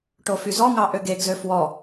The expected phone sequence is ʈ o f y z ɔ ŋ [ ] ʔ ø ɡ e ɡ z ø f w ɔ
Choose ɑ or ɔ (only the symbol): ɑ